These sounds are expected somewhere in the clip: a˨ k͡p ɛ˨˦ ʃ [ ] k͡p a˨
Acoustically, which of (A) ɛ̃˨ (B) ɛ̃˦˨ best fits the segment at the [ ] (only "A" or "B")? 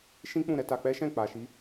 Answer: B